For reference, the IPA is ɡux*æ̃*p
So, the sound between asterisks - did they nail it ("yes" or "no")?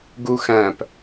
yes